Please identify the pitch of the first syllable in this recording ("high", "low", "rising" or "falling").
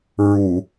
low